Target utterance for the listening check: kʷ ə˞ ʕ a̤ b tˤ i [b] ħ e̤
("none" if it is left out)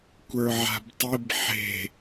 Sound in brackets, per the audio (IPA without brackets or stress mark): b